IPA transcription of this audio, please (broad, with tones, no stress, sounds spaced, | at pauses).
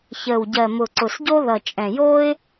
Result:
ç əː˨˩ w ɟ ɜ˨˩ m ʊ˨˩ ǀ ʊ˨˩ s ɟ o˦ ð ʌ˨˩ t͡ʃʼ ɛ̃˨˩ j oː˦ ɪ̯